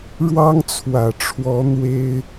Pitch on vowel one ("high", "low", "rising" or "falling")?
high